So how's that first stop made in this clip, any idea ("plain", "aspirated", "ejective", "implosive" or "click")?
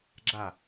click